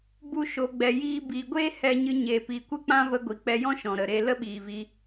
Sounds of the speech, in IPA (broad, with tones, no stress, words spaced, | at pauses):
bu˧ʃo˨ ɡ͡bɛ˨jiː˧ biː˨ɡʷeː˦ hɛ˧ɲɨ˧ ɲeː˨pi˨ kʷɨ˦k͡pã˦ və˧ɡʷi˨k͡pɛ˧ jɔ̃˦ʃɔ̃˨ ɾə˨ɾe˧ lə˦ɓiː˨vi˧